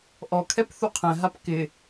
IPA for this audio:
ʔɔkʰɛp θuqʰɛ̃ɦap kɪ

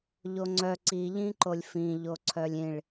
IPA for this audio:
ʎoŋ͡ǀœ ǀiʎĩǃolʲ fĩʎo ǀʰœlʲĩɭ

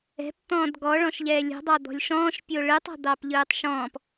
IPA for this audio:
ɛ̤pt̪ɔ̃ːd ɡɔɭɔ̃ʃʎɛː lʲo̤dˤɑ d̪ɔ̤lʲʃɔ̃ːʃ pʲoɭɯtˤɔ̤ d̪ɑpʎɯːtˤʃɔ̃ːp

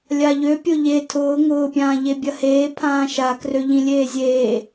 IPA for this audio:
lʲaʎøpʲʊ ʎe tʰʊː ŋʊːpʲãː ʎebʲɐheː pʰãːʃakrøʎĩ lʲeːzʲeː

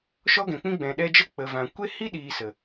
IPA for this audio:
ʃɔ˦ɡɛ̃˨k͡pĩ˦ ɡ͡bɛ̃˨ɗɛ˧d͡ʒə˦ k͡pə˨vã˨ kʷe˦hi˦ɗiː˨ sə˨

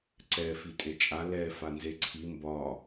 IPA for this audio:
ǀɛ fitʼet͡ʃʼa lɛ fanzeǀʰi mbɒ

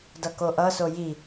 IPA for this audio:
dʌkoʔʌso ji

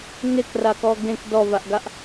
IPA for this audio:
ŋekrakɔ ɡẽk dɔvaʔɡaʔ

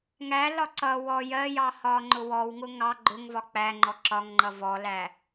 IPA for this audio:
ŋælɒ ǀʌ wɔ jɜjɑ hɒ ŋ͡ǃʊwɔwŋʊ ŋɑ ɡ͡ǃʊŋvɒ k͡pæŋ͡ǃɔ ǁɒŋŋ͡ǃʌ vɔlæ

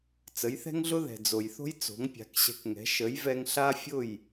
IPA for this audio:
t͡sə˩˥jθɛ̤˥ŋɮʊ˥ ðɛ̤˩d͡zo˩jθo̤˥j t͡so̤˩˥ŋpʲa̤˩˥kɕɛ̤˧kŋɛ̤˩˥ ʃə˩˥jvɛ˧ŋ ɬa˥fʲʊ˥˩j

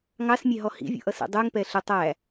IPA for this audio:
ŋɑsmʲɛ ɦɔhḭvʲṵʔʌ sḭdˤuŋ pɛɬʊ tˤæ

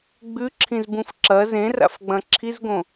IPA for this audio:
ɡ͡bʉǁʰĩzbũf ǁɐ zẽra̰fɡ͡bɐ̃ ǁʰizɡõ

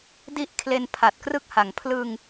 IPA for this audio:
di˦˥ʔ kʰle˧npʰa˨˩t̚krɯ˦˥k̚ha˩˦ŋ pʰlɯ˧ŋ

